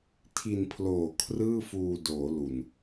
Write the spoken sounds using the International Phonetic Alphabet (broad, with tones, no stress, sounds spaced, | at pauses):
tʰ i˧ n pʰ l oː˨˩ kʰ r ɯː˥˩ f uː˧ d oː˩˦ l u˨˩ n